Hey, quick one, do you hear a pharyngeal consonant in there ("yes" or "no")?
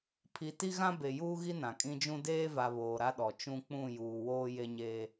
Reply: no